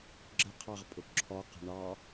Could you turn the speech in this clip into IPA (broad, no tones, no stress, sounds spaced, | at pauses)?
ɡ͡ǁ ə qʰ ɑ ʁ pʼ ʊ ǁʰ ɔ q ə̤ ɳ ɑ